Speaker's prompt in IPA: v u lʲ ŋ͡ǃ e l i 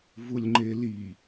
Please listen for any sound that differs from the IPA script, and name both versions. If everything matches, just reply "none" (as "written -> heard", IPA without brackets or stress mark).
none